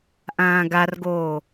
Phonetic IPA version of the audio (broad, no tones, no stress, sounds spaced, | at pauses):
ʔ ãː ɡ a r ɡ oː